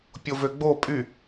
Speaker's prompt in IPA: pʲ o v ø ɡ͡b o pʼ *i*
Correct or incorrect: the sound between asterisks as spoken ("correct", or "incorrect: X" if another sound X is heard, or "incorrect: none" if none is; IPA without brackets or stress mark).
incorrect: y